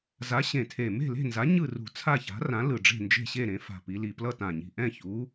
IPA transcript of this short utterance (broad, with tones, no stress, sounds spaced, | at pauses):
z a˨˥ ɕ ẽ˨˩ tʰ e˨˩ m e̤˥˨ l e̤˥˨ n z a˨˥ ɲ ɯ˥˨ r ṳ˨˩ t͡sʰ a˥˨ ç a̤˨˥ r ã˨˥ l ɯ˨˩ ɖ͡ʐ e̤˥˨ n d͡ʒ e̤˥˨ ɕ e˥˨ ɾ ẽ˩˧ f a̤˨˩ p i˩˧ l i˨˩ p l ʌ˥˨ t ã˨˩ ɲ i̤˨˩ ʔ ɛ̃˥˨ ç u˨˥